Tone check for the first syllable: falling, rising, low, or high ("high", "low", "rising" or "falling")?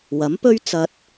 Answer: rising